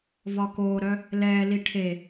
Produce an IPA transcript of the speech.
v ɒ k oː ɾ œ | l ɛː l i ʈʰ e

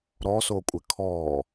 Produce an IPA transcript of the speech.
ɾ ɔ s o kʷʼ ɪ kʰ ɔ

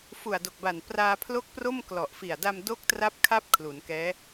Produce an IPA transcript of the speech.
f u˨˩ a̯ d o˨˩ k̚ b a˨˩ n p r aː˧ pʰ l o˦˥ k̚ p r o˥˩ m k l ɔ˨˩ ʔ f i˨˩ a̯ d a˧ m d o˦˥ k̚ t r a˦˥ p̚ kʰ a˦˥ p̚ kʰ l u˩˦ n k ɛː˦˥

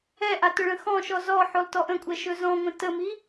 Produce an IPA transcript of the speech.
ɛ ʔ a t ɵ ɭ ə̃ x ɔ̃ ʃ ɔ z ɔ ħ ø lˠ t ɔ ʔ ə̃ kʷʼ ɛ ʃ ɵ z ɔ̃ ŋʷ ə̃ t ə m i

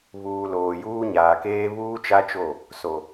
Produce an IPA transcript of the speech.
β uː˨ l oː˨ j uː˦ ɲ aː˨ k eː˦ β uː˦ t͡ʃ a˦ t͡ʃ o˦˨ | s o˨

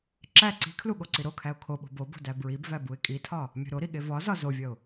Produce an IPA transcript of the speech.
ǁ æ ǀ i̤ kʰ l u ɠ o ǀ i ɾ o kʰ æ ʊ̯ kʰ o ɓ o̤ b o b o̤ d æ b ɹ i b v æ b u ɪ̯ kʼ i tʰ ɒ | mʲ o̤ ɾ o ɾ i ɠ e v ɒ z ɒ z o vʲ ɒ ʊ̯

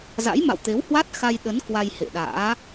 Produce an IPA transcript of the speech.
z a̰˧˥ j m a̰˧˨ w t̪ e˨˦ w h w a˦˥ t̚ x a˧ j ɗ ə˨˦ n k w a˧ j h ḛ˧˨ ɗ a̰ː˧˥

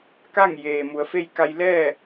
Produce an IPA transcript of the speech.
k a˥˨ ŋ j eː˩ m u˩˧ ə̯ f e˥˨ j k a˧ j l ɛː˥˨

